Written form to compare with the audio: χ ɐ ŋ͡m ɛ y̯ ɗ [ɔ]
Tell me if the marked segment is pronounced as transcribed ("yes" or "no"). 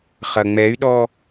yes